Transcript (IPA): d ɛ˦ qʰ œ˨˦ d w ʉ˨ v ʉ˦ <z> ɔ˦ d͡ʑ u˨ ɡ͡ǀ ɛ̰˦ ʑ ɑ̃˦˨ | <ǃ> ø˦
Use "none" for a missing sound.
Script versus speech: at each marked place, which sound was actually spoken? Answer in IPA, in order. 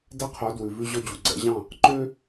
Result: ʑ, ǃ

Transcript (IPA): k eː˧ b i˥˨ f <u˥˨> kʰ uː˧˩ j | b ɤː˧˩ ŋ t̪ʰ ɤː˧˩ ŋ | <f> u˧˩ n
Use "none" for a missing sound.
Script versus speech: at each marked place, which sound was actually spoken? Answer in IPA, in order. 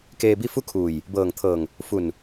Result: u˥˨, f

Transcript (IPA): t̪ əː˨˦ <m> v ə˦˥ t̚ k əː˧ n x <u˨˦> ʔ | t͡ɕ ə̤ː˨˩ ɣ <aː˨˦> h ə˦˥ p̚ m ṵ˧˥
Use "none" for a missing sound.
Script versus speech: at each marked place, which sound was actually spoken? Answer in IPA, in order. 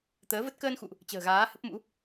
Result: none, ṵ˧˨, aː˨˦

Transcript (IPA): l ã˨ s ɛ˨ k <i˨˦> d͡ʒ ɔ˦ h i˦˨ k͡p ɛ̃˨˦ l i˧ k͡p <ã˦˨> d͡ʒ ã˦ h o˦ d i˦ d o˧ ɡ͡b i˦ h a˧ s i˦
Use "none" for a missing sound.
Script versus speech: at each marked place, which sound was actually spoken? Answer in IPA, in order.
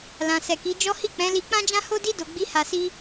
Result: i˨˦, ã˦

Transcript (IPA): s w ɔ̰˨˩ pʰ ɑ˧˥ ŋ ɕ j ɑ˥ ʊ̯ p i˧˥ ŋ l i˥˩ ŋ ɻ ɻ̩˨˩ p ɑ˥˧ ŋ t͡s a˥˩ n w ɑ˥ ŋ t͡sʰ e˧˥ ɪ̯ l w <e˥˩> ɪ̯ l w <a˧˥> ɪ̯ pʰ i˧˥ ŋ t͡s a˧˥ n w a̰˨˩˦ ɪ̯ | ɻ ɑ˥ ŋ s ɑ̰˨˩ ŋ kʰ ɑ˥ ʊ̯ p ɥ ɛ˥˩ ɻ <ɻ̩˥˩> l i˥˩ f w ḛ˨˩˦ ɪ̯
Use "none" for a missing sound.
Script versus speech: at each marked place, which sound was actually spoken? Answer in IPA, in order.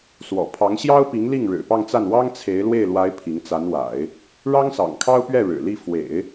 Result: e˥˩, a˧˥, ɻ̩˨˩

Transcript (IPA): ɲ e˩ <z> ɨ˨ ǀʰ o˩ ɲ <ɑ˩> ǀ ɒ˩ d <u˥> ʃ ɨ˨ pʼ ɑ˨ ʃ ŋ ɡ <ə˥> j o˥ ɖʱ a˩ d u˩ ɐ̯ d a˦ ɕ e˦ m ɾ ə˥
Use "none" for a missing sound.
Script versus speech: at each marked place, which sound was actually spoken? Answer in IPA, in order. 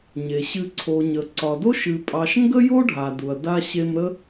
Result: ɕ, ə˩, o˥, ə˥

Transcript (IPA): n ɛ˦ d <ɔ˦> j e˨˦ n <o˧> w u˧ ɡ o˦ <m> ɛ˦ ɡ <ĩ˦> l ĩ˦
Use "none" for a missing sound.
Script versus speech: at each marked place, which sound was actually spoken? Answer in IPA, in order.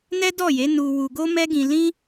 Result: ɔ˦˨, u˧, m, ĩ˧

